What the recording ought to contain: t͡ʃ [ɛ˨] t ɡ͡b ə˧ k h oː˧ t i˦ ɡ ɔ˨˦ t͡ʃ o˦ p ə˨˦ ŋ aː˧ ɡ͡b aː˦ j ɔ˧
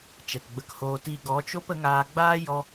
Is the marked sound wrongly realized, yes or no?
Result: no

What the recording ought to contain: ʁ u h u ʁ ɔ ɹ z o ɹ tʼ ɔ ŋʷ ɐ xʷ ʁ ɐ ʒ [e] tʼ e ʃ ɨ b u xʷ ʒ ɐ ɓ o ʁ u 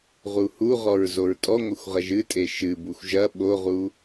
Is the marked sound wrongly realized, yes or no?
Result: yes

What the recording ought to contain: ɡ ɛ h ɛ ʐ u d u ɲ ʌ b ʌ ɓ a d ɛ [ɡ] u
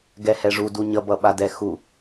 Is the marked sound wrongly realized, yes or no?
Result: yes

